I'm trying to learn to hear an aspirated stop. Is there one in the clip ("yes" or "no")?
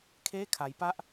yes